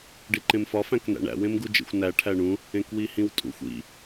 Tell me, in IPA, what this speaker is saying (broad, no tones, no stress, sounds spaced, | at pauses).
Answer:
ɖ i ǃ ẽ m f ɒ f æ̃ k n æ̰ ɳ æ̰ w ẽ m ɡ u d͡ʒ ḭ xʷ n æ ʈʰ æ ɳ ũ | ẽ k w i h ĩ w tʼ ṵ xʷ ḭ